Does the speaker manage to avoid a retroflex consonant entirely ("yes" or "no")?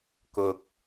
yes